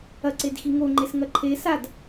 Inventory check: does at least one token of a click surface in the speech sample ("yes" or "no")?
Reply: yes